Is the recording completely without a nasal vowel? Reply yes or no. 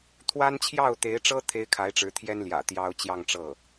yes